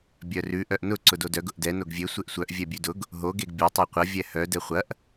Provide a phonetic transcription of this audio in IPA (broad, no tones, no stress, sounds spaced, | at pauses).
bʲ œ r ʉ ʔ œ ʔ n ʊ ǀ ʊ d o d œ ɡ ʊ ʔ d ɛ n o ɡ vʲ e sʷ e ʔ sʷ œ ʔ vʲ ɛ bʲ ʉ d ʊ ɡ | ɦ o ɡ e ɡ bʲ o tˤ ɛ qʷ ɐ vʲ ɛ h œ d ɛ χʷ ɐ ʔ